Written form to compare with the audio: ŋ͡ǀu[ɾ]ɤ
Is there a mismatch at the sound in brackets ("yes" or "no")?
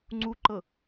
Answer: yes